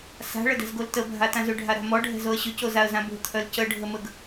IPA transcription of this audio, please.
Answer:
s a̤ ɭ ə d ɛ̤ z ɡ o l t ə bʱ a t ã z ʏ ɖʱ a ɾ a̤ m ɔ ɖʱ ɛ̤ z o ə̯ ɕ ʏ c o z a ə̯ z ã b o̤ t̪ʰ œ l c ə ɖʱ ə m ə ɡ

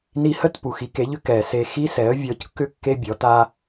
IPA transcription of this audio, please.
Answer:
n i˧ h ə˥˩ t p u˩ x i˩˥ k e˩˥ ʎ ʏ˧ k ɛ˩ s e˧ x i˥ s ɛ˩˥ ə̯ vʲ ɔ˩˥ c kː ʏ˥ kː e˥ bʲ ɔ˩˥ t a˥

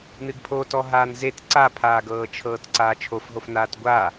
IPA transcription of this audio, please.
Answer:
n ɨ ɡ pʰ o t ɔ ɦ aː n z e t ǀ a pʰ aː ɡ ɤː t͡ʃʰ ɤː t ǀ aː t͡ʃʰ o f ɦ o f n aː t ɡʷ a

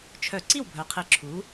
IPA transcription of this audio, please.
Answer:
t͡ʃʰ œ˧˩˧ ǀ i˥˩ w bʱ œ˩˧ qʰ i˩˥ ǁʰ u˩˥

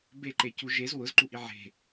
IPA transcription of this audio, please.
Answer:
b e ǃ e c u ʒ e z w ʊ z ǃ u ʔ i ʕ e̤

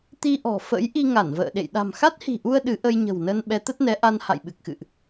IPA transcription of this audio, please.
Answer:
t̪ i˧ ʔ ɔ̤˨˩ f ə̰˧˥ j ʔ i˧ ŋ a˧˩ n v ə̰ː˧˨ ɗ ḛ˧˨ j ɗ a̤˨˩ m x a˦˥ t̚ h i̤˨˩ ʔ u˧ ə̯ ɗ ɨ˨˦ ʔ ə˧ j ɲ ə̤˨˩ w n ə˧ n ɓ ɛ˨˦ t̪ ə˦˥ t̚ n ɛ˨˦ ʔ a˧ n h a̰˧˨ j ɓ ɨ˨˩ k̚ x ɨ̰˧˨ ʔ

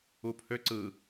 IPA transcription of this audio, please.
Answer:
u pʰ ø ǀ ɯ

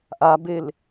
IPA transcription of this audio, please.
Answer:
ʔ a b e l

